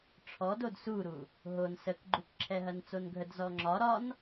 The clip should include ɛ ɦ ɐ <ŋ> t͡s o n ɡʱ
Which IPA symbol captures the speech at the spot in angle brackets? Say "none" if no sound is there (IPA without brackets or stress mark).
n